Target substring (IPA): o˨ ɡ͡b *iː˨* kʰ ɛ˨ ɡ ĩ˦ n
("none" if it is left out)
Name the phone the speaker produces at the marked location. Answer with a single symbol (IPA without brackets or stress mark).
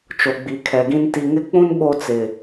i˨